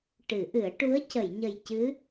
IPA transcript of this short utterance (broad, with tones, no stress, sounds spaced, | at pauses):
ʈ ɨ˨˩˦ ʔ ɨ˨˩˦ ə̯ ʈ u˧˥ ə̯ c ə˨˩˨ j ɲ ə˨˩ j c ɨ˧˥